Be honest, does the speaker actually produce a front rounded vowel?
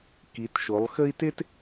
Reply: no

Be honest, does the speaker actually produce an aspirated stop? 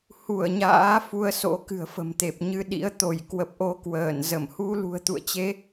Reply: no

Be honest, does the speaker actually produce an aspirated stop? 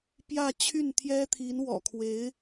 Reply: yes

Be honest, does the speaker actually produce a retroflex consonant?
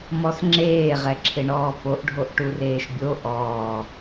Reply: yes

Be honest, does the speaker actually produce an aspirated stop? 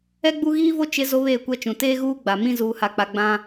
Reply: no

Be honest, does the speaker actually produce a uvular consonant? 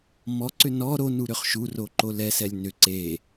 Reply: yes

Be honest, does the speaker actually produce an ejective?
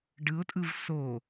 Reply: yes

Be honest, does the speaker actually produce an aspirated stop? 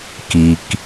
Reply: no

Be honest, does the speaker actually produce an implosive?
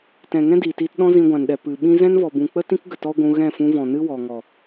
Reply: yes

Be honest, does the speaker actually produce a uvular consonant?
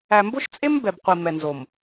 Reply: yes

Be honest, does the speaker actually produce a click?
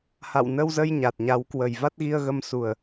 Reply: no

